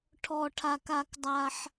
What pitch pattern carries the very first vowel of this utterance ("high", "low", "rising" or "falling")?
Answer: high